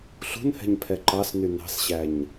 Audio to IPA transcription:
ɬ ṳ n h ɛ̤ ɲ pʰ ɛ ǃ ɑ s n y n ɑ̤ s ɕ æ ɲ

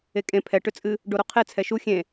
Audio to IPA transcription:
e kʼ ẽ pʰ ɛ ʈ ʏ t͡sʼ ɨ | ɖ o ɾ o qʰ e t͡sʰ ɛ ʃ u xʲ ẽ

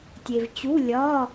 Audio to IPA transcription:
tʲ e˧ v t͡ɕ u˧˥˧ lʲ ɒ˧˥˧

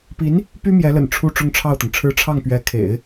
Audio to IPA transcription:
p i˧˥ n | p y˥ m j ɛ˧˥ l ə̰˨˩ n ʈ͡ʂʰ u˥˧ ʈ͡ʂ ʊ˥˧ ŋ ʈ͡ʂʰ ɑ˥˩ ʊ̯ t̪ ə˩ n ʈ͡ʂʰ ɻ̩˥˧ ʈ͡ʂʰ ɑ˥˩ ŋ p ɥ ɛ˧˥ kʰ ḛ˨˩˦ ɪ̯

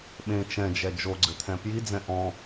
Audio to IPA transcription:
ɓ ẽ t͡ʃ ɛ̃ d͡ʒ ɛ d͡ʒ o ɡ͡ǀ ɘ t̪ʰ ɛ̃ p j i d͡z ɛ̃ ʔ ɔ̃

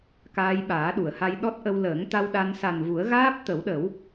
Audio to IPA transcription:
k aː˧ j ɓ aː˨˩˦ ɗ u˨˩˨ ə̯ h a˧ j ɗ ɔ˦˥ t̚ ʔ ə˧ w l əː˨˩˦ ŋ t̪ a˧ w ɗ a˧ n s a˨˩ n v u˨˩˦ ə̯ ɣ aː˦˥ p̚ t̪ ə˨˩˦ w ɗ ə˨˩˦ w

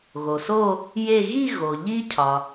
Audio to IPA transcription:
ɣ o˩ s o˦˨ | j e˦˨ ɣ i˦˨ ɣ o˩ ʎ i˦˥ cʰ ɒ˩

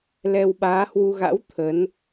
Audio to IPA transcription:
l ɛ˧ w ɓ aː˨˦ h w u˧ ɣ a̰˧˥ w t̪ʰ ə˨˦ n

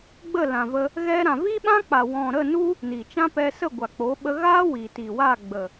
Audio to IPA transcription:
ɡ͡b ə˦˨ l ã˨ v ə˧ | ɣ ɛ˧ ɾ ã˨ v i˦ ɓ ã˦ k͡p a˨ w ɔ̃˨ ɾ ə˦˨ n u˦ | n i˨ t͡ʃ ã˦ p ɛ˧ s ə˦˨ ɡʷ a˨ k͡p o˨˦ ɓ ə˧ ɣ a˦ w i˨ t i˨ w a˦˨ ɡ͡b ə˨

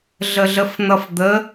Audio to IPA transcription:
ɮ ə ɮ ə f n̪ ʌ f d̪ ə

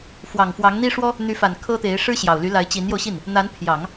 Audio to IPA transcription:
f w ɑ˨˩ ŋ f w ɑ˧˥ ŋ n̪ i˥ ʂ w ɔ˥ | n̪ y˧˥ f a˨˩ n kʰ ɤ˥ t̪ e˧˥ ɪ̯ ʂ ɻ̩˥ ɕ j ɑ˨˩ ʊ̯ l y˧˥ l a˧˥ ɪ̯ t͡ɕ i˧˥ n j o˧ ʊ̯ ɕ i˥˩ n | n̪ a˧˥ n pʰ j ɑ˨˩˦ ŋ

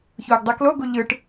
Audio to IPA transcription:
ç oː ɡ dˤ i k l o ɡ u ʎ ɯ ʈ

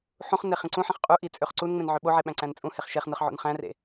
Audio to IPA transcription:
ħ ũ χ n e χ ĩ ǀ ũ ħ ẽ χ qʼ u ʔ i t͡sʼ ø χ ǀ u n ŋ͡m ẽ n ʕ ø ɓ o ʕ e ɓ æ̃ ǀ æ̃ n t͡sʼ ũ h e χ ʃ e χ n ɯ χ ʕ o̰ n χ æ̃ r ḛ

